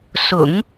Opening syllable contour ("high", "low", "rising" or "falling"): low